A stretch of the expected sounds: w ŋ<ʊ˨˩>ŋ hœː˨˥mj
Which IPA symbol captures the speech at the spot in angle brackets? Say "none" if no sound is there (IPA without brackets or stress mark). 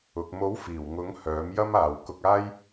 ʊ˨˥